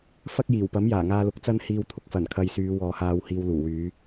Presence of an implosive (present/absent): absent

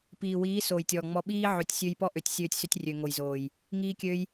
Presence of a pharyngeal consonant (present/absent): present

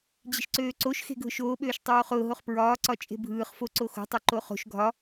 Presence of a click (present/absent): present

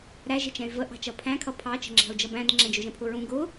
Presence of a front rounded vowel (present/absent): present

